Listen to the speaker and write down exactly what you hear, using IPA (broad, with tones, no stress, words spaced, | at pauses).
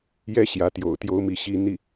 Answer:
jɛ˧˥ ɕjä˧˥t̪jo̰˨˩ʊ̯ t̪jo˥ʊ̯mi˥˩ɕi˥ n̪i˥˩